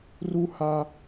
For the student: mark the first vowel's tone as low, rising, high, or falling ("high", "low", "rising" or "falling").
high